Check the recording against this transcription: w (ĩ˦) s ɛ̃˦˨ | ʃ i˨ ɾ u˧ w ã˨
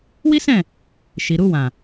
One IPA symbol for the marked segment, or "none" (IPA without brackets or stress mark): i˦